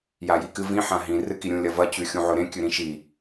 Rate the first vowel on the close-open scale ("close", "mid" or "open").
open